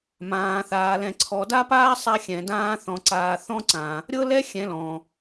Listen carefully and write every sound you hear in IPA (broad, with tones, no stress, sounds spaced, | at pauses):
m ãː˨ θ aː˨ l ɛ̃˨ ǀʰ ɔ˨ d a˦ p aː˦ sˤ a˦ xʲ ɛ̃˨ d ãː˦ θ ɔ̃˨ ǀ aː˨ θ ɔ̃˦ ǀ ã˨ | ɾʲ ɤ˦ l ɛ˦ xʲ ɛ̃˨˦ l ɔ̃˨